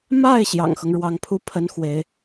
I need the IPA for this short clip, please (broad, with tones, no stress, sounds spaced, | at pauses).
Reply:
m a˥˩ ɪ̯ ɕ j ɑ̰˨˩ ŋ x ɤ˦ ŋ ɻ w ɑ˧˥ ŋ pʰ u˥ pʰ ə˥ n x w e˧˥ ɪ̯